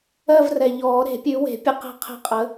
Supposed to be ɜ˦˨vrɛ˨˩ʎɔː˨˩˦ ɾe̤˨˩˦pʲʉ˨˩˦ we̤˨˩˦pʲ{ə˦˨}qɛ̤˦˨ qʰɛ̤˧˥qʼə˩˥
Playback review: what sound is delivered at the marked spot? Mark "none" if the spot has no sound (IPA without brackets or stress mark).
ə˦˨